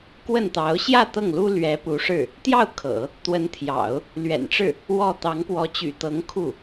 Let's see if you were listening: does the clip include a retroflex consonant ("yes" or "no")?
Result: yes